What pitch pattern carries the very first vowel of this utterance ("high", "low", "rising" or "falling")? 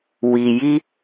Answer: low